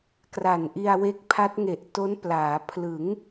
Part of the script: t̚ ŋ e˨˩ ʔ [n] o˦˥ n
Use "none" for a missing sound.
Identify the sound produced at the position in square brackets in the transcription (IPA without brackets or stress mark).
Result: t